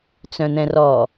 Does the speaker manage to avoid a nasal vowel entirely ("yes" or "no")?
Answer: no